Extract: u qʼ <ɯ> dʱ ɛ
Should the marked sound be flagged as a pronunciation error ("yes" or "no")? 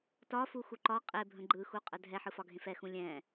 yes